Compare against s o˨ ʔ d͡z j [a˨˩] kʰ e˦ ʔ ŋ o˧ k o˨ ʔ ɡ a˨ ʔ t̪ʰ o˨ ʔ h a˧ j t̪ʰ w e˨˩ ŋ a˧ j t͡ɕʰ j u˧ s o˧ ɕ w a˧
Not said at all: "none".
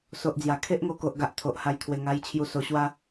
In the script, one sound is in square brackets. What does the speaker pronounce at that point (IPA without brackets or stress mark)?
a˨˩